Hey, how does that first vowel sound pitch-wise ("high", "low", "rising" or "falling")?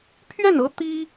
falling